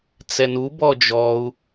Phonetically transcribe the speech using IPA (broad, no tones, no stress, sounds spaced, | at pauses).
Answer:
t͡s ɛ n u b ɔ d͡ʒ ɔ u̯